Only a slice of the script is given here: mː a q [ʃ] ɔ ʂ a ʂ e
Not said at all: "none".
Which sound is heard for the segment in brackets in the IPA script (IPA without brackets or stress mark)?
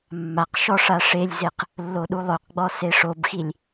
ʃ